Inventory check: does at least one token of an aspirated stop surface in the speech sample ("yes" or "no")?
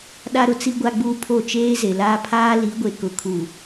yes